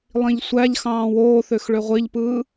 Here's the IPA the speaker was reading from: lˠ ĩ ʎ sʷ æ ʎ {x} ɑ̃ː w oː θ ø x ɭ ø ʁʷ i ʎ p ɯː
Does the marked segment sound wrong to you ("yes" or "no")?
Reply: no